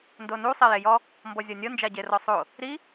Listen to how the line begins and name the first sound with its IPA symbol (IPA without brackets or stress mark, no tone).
n